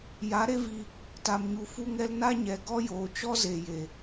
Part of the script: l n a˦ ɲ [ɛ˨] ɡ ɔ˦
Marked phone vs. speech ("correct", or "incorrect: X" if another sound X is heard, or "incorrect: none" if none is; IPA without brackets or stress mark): correct